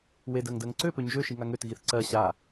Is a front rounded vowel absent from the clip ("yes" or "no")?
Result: no